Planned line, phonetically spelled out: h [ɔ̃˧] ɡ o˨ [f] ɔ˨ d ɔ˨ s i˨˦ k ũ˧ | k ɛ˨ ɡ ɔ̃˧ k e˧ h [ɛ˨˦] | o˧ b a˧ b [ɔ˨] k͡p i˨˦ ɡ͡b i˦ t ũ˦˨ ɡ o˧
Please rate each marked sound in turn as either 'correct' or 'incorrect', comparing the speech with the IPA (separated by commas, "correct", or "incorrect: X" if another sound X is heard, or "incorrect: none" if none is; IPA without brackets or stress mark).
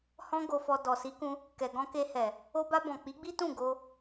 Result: correct, correct, incorrect: ɛ˨, incorrect: ɔ̃˨